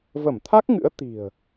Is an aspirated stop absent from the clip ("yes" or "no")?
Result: no